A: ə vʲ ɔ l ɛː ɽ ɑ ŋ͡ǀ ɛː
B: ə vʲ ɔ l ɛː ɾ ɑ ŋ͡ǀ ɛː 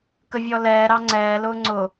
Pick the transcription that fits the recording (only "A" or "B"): B